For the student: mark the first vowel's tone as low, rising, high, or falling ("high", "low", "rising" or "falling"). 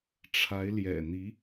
rising